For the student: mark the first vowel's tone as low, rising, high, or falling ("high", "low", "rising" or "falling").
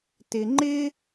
high